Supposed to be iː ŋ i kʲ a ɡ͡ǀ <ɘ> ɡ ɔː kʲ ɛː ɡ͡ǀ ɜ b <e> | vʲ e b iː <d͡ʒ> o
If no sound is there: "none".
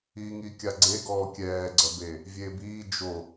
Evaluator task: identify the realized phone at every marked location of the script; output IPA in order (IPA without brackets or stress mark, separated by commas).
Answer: e, e, d͡ʒ